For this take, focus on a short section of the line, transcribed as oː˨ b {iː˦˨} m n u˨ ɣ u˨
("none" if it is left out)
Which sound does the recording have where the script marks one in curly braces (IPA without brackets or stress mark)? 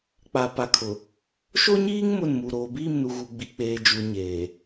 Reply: iː˦˨